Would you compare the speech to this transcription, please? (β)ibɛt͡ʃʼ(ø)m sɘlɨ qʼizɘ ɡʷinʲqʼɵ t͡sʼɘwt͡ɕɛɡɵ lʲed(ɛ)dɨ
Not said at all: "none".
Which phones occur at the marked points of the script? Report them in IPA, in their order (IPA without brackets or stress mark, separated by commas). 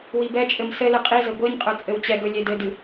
w, ɘ, ɘ